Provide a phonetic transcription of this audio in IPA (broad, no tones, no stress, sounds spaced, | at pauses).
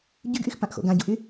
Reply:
ɟ y ɡ ʔ y x p ã ʔ x o̰ ɡ ã ɟ u ʔ y